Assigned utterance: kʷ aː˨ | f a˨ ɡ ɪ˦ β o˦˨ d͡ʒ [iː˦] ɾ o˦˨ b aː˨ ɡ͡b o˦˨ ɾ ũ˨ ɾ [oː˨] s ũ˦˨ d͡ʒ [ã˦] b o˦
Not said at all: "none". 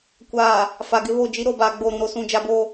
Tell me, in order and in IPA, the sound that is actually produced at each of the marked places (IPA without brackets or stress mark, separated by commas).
i˦, o˨, a˦